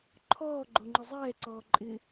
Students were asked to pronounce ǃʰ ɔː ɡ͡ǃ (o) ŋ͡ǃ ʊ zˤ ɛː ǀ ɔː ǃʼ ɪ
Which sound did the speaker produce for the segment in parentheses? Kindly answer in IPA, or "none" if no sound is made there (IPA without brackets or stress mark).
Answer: o